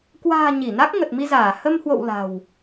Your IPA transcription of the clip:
kwa̤ː˨˩ ɲi˧˩na˦˥k̚ ŋə˨˩t̚mi˧zaː˧˩ hə˧mhwo̰˧˨w la̤˨˩w

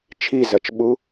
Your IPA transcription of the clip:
t͡ʃʰizɐt͡ʃɓu

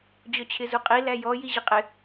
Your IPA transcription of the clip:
d͡ʑɔt͡ɕʰɪzuqʼi læjɔ jiʑɪqʼɪ

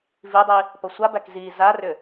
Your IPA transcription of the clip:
vidˤi | pʌsʷabæk zi zarʏ

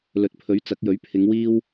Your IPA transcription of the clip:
lɵ˨˥t̚pʰɵ˨˥ɥ t͡sɐ˨˥k̚jɵ˨˥ɥ pʰɪ˨˧ŋ wiː˥w

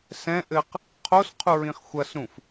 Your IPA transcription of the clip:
sɛ̃ʔɘq | qʰosqʰuɹĩχ xʷɐsɾũf

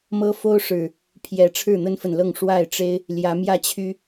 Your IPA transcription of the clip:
mɤ˦fo˦ʊ̯ ʂɻ̩˨˩ | pʰjɛ˨˦ ʈ͡ʂʰɻ̩˥˨n̪ə˦nfə˨nlɤ˥˨ŋ ʂwa˥˨ɪ̯ʈ͡ʂe˦ɪ̯ | ljä˨˦mjä˥˨t͡ɕʰy˦

